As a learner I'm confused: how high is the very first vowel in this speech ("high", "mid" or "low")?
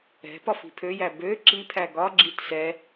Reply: mid